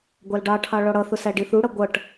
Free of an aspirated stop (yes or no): no